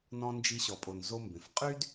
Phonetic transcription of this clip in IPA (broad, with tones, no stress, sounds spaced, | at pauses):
n ɔ̃˧ n d͡ʒ i˧ ɕ ɔ˨ pʼ o˨ n z o˧ m b ẽ˨ f qʼ y˦ d